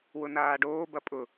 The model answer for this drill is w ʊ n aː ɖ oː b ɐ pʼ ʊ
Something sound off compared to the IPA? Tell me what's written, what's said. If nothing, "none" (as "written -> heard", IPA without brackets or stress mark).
none